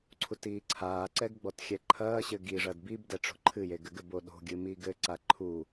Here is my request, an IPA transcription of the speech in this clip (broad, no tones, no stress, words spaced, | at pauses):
ǀʰutiːǀʰaːǀɛɡ ɡ͡bɔtxʲɛǃʰɐːɕɘ ɡiʐɐd bib dɛʈ͡ʂo̤ǃʰɨje ɡɘɡɘbo ɗo̤ɡʲɨ miːɡɘǀa ǃʰu